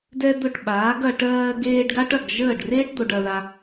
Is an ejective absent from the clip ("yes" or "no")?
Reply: yes